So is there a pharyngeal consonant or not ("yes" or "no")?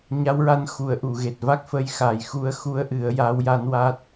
no